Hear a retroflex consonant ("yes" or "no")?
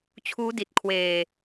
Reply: no